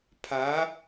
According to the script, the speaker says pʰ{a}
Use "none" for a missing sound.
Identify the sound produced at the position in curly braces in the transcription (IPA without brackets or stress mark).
a